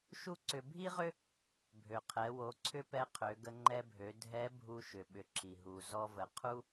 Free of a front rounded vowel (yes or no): no